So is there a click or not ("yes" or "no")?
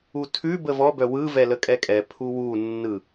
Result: no